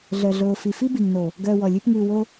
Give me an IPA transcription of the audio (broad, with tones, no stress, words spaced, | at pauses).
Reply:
ɮœ˨ɮoː˨fi˨fi˦ bi˨ŋno˨ | ɡœː˧wɔ˨lʲʉ˦p ŋʉː˧ wo˦